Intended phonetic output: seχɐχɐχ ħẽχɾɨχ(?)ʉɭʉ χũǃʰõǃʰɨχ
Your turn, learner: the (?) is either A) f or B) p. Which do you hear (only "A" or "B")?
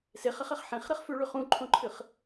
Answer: A